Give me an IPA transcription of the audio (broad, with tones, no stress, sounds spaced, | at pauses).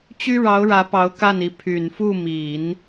t͡ɕ y˥ ɻ ɑ˧˥ ʊ̯ ɻ ä˧˥ p ɑ˧˥ ʊ̯ k a˥˩ n i˧˥ pʰ y˨˩ n f u˥˩ m i˨˩˦ n